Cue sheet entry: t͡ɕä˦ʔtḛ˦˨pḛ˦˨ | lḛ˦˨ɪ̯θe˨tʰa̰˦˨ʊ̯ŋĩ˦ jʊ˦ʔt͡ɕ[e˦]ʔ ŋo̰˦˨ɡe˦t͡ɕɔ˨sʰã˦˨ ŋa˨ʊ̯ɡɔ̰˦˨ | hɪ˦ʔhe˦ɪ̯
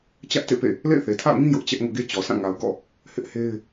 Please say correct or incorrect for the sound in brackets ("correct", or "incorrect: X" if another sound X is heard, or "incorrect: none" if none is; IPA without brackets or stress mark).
incorrect: ɛ˦